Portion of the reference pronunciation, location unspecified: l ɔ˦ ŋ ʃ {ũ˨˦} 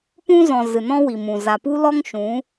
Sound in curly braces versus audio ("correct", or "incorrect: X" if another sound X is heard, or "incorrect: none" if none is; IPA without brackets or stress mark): correct